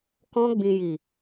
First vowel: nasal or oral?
nasal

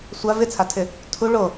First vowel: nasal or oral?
oral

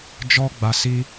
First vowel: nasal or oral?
oral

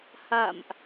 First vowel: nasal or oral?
oral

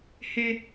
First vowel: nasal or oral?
oral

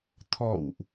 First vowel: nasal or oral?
oral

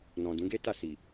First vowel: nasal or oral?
nasal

